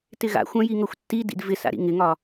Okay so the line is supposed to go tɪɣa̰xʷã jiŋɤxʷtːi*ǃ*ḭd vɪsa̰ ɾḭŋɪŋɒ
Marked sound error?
yes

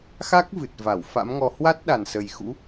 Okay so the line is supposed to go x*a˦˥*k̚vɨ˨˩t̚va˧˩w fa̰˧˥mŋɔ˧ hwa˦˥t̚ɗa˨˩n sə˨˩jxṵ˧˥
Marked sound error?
no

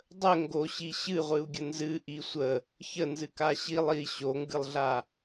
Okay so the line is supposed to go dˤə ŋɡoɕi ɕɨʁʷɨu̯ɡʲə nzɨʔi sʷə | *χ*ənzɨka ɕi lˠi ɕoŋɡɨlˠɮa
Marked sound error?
yes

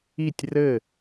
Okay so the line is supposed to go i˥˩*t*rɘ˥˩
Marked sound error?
yes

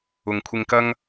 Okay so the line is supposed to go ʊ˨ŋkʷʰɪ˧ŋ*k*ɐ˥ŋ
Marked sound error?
no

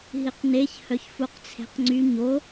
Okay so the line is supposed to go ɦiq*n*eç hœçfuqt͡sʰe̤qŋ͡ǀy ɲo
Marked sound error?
no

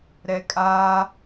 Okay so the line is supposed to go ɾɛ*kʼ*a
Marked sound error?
no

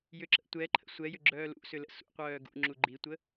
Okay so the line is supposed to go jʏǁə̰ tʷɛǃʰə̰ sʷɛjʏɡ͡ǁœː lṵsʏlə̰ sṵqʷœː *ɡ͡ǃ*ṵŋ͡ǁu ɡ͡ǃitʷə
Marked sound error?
yes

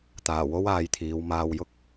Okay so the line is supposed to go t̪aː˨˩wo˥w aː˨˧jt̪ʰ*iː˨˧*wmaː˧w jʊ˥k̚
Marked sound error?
no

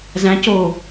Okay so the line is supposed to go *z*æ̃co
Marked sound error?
no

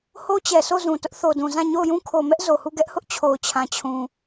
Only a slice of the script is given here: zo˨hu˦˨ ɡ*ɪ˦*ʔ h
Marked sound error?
yes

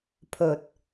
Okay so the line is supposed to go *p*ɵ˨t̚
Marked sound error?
yes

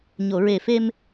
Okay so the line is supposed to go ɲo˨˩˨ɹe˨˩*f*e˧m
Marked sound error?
no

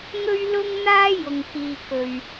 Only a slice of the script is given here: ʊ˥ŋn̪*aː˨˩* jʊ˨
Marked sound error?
yes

